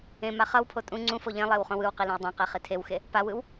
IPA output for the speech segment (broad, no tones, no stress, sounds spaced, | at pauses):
ẽ m a χ ʌ w pʰ o tʼ ũ ŋ͡ǀ ũ f o ʎ ẽ lˠ e w χ õ w ɯ w q i l ẽ w dˤ ã q e χ i tʰ e w x e | p a w ɯ w